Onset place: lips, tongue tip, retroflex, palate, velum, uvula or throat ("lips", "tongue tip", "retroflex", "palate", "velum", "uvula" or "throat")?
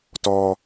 tongue tip